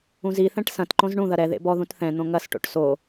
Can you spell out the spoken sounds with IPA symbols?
ũ z i θ ɛ̃ ʈ s ɐ̃ t ǃ õ z ɳ ũ ð ɐ ɾ ɛ ð ḛ b ɔ ð ũ t θ ɛ̃ n̪ õ ŋ ɐ s ʈ o̰ ʈ s o

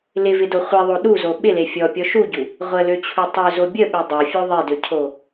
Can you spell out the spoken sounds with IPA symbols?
l ɪ v ɪ d o χʷ i ðˤ o ɗ u z o ɓ ɪ l e fʲ ɔ pʲ ɔ ʃ u ɟ u | ʁʷ ə l ø t͡ɕʰ u tˤ ø z o bʲ ə ɓ e dˤ ø fʲ o ðˤ e d ø cʰ o

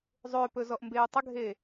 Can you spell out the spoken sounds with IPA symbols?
zˤ ʏː p ɵ z ɔ ʔ m b eː tˤ ə ɡʱ eː

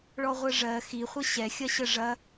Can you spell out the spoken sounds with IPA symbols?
ɭ ɔ ʁʷ ɜ ʐ ɜ x i χʷ ə ɕ ɛ xʲ ɐ ɕ ə ʐ ɐ

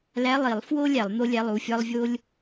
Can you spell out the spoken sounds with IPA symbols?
l æ˧˥˧ lˠ i˨˩˦ lˠ f w o˥ lʲ æ˨˩˦ lˠ n̪ o˥ lʲ æ˧˥˧ lˠ u˧˥˧ fʲ ɒ˥ lˠ vʲ o˥ lʲ

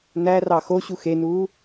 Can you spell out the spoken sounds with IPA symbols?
n æ r ɑ x o ɕ u x e n uː

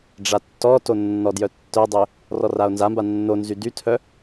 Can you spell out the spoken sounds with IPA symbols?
ɖ͡ʐ a tː ɔ t o nː ɔ d j œ tː œ dˤ ø | r ɔ r a o̯ n z a m b a nː o n z y d y tʰ œ

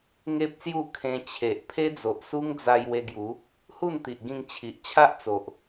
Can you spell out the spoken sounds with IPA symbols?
ŋ e˦ p̚ s j u˥˧ kʰ ẽ˧ t͡ɕʰ e˨ ʔ pʰ e˦ d͡z o˨ ʔ s u˦ ŋ d͡z a˧ j w e˧ ɡ j u˨˦ | h u˥˧ n t̪ i˨ ʔ ɡ ĩ˧ ŋ t͡ɕʰ i˨ ʔ t͡ɕʰ a˦ ʔ t͡s o˨ ʔ

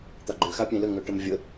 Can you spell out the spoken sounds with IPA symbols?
t̪ a ɡ͡ǃ ʏ x a pʲ ẽ l ə ŋ œ ʈ ə m vʲ ə

